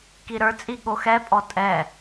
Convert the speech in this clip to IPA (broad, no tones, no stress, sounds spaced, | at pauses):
k i ɾ ə˞ t͡sʼ i ɠ o x ɛ pʼ ɔ tʼ ɛ